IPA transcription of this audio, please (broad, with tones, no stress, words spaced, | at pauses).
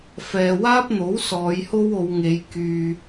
fɛː˨waː˥p̚n̪o˨˥w sɔː˨˧jho˥wo˨˧wŋe˨˧j kyː˨